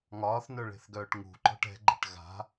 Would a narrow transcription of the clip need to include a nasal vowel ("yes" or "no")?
no